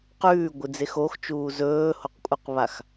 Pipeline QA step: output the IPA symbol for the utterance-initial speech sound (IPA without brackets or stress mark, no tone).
q